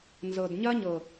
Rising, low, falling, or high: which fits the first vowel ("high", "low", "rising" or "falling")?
low